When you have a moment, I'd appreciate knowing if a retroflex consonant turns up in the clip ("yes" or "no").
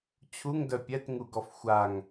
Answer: no